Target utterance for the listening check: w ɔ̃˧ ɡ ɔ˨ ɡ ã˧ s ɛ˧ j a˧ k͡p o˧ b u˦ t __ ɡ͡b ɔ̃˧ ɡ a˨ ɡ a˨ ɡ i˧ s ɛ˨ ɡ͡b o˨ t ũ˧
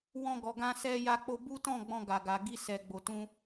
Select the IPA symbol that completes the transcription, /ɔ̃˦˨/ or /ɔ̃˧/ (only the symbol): ɔ̃˦˨